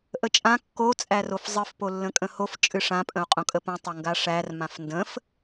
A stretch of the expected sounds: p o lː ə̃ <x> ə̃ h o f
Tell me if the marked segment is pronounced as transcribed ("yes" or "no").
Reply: no